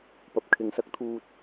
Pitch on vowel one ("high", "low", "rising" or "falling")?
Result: low